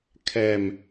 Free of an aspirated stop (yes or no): no